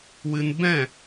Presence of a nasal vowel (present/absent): present